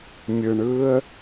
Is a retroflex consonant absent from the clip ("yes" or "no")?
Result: no